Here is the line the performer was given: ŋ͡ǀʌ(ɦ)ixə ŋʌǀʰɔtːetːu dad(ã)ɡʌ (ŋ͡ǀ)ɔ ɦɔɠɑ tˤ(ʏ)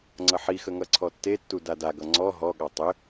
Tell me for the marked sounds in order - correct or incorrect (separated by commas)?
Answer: incorrect, incorrect, correct, correct